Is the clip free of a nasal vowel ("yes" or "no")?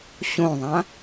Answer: no